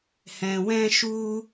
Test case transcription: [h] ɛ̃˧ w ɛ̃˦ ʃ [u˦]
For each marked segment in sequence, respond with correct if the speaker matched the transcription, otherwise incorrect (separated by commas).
correct, correct